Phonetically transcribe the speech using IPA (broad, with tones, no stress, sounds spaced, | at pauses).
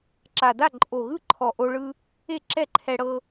ǁ a˨˩ d a˥˩ ǃʼ o˨˩ ɣ ɯ˥˩ ǃʰ ɔ˨˩ ʔ o˧ ɭ ɯ˧ | e˥˩ ǁ ɛ˥˩ ǃʰ ɛ˧ ɽ ɤ˧